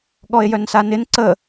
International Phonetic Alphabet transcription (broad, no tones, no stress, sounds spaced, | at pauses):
ɠ ɔ e̯ j œ n s a n ɪ n ǀ ə